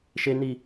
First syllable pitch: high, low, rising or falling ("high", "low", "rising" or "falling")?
high